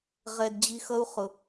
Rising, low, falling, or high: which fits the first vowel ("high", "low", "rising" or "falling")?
low